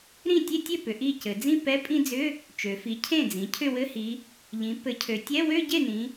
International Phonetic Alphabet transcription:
ɾ ĩ˥˩ tʲ e˥˧ tʲ ø˥˩ p ʏ˩˧ ʔ i˥˩ c ɘ˩˧ d͡z ĩ˥˧ p ɛ˧˥˧ pʼ ĩ˥˧ d͡z ʏ˧˥˧ | t͡ʃ ø˩˧ f i˩˥ cʰ ẽ˥˩ d͡z ĩ˩˧ cʰ ʏ˥˩ w ɘ˧˥˧ h i˩˧ | ʎ ĩ˩˥ p ɘ˩˥ cʰ ø˩˧ tʲ ɛ˧˥˧ w ø˥˧ ɟ e˥˩ n ĩ˩˧

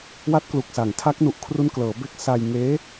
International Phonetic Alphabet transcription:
w a˦˥ t̚ k l u˨˩ k̚ s a˩˦ ŋ tʰ a˦˥ k̚ n u˨˩ ʔ kʰ r u˦˥ n k l ɤː˩˦ b e˦˥ k̚ s a˧ j ŋ eː˦˥

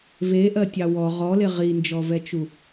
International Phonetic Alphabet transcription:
v e ʔ ɜ tʲ ɑ w ɔ ʁ ɔ l e ʁ i n d͡ʒ ɔ v ɛ t͡ʃ u

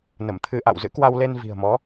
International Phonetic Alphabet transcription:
n ə˧˩ m t̪ʰ ɨ˧ ʔ a̰˧˨ w z ɨ̰˧˥ k w a˧ w l e˧ n v i̤˨˩ ə̯ m ɔ˨˦

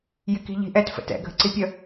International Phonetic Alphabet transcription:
j ɪ k i̤ ʎ i̤ ʔ ɛ t f ə̰ t ɛ̰ ɡʱ ə̤ ǀ i pʲ ə

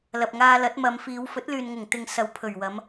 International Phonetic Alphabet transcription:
l ɐ˨ p̚ ŋ aː˧ l ɐ˨˥ t̚ m ɐ˨˧ m f iː˨˧ w f ɵ˨˥ t̚ l yː˨ n ŋ ʊ˨˩ ŋ t̪ ɪ˨ ŋ s ɐ˨˧ w pʰ ɵ˨˩ ɥ w ɐ˨˧ m

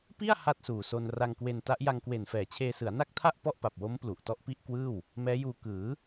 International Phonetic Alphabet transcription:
p i˥˩ a̯ h a˥˩ t̚ s uː˨˩ s o˧ n r a˧ ŋ k w e˧ n t a˦˥ ʔ j a˧ ŋ k w e˨˩ n f ɛː˨˩ t͡ɕʰ eː˧ s ɯ˩˦ a̯ n a˥˩ k̚ tʰ a˥˩ ʔ p ɔ˥˩ ʔ p a˨˩ p̚ w o˦˥ m p l u˨˩ ʔ t ɔ˥˩ ʔ p i˥˩ ʔ k w ɯː˥˩ w | m ɛː˦˥ j uː˧ k ɯː˩˦

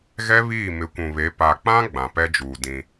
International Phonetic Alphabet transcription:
ɣ ɛ˦ β iː˦˨ m ɪ˨˦ kʷ ũ˨ β e˨˦ p a˨ k͡p ã˦ ɡ͡b ã˨ p ɛ˦ d͡ʒ uː˨ d ĩ˦

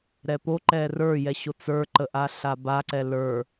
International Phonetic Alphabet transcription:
ɾ ɛ p o ǃ ɛ r ə˞ j ɛ ɕ o t͡s ə˞ ǃ ə ʔ a ɬ a b a ǀ ɛ l ə˞

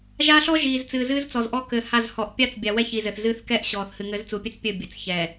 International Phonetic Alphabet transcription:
ʒ a˦ ɬ ɔ˦ ʒ iː˨ z t͡s ɨː˨ z ɨː˦ z t͡s ɔ˨ z ʔ ɔ˦ k ɘ˨ h a˦˨ z h ɔ˨ ʔ pʲ a˦ t͡s bʲ a˨ w ɛ˦ ç i˨ z ɘ˨ θ z ɨː˦ θ k ɛ˦ ʔ ɕ ɔː˨ θ h ɨ˨ ŋ ɘ˨˦ z t͡s u˨ pʲ ɘ˦ t͡s pʲ ɘ˦˨ bʲ ɘ˨ t͡s ç ɛː˨

